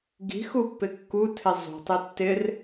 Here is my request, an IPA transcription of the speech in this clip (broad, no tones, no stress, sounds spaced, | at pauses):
ɡ i̤ x u pː ɪ kː u tʰ ɪ zˤ ṳ tˤ ɪ tː ɪ r